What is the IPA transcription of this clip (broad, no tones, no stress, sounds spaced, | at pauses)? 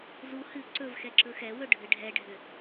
z u h ɨ ǀ ɵ v x ɛ ǁ ɵ x ɛ w ɵ ɖʱ ɨ ɖʱ ɛ ɖʱ ʏ